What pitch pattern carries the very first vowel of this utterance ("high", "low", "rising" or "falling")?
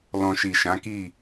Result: low